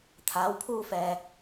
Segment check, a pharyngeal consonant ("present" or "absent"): absent